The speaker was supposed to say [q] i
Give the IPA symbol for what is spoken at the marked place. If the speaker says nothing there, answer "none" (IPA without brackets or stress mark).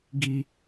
ɡ